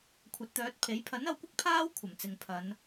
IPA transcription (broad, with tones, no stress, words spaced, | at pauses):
kʷʰɐ˨˥t̚t̪œː˨˥t̚pʰe˨˥j pʰɐ˨˥nɐ˨˧wkʷɐ˥k̚ pʰaː˥w kʷʰɐ˨˩mt͡sɪ˨ŋpʰɐ˨˧n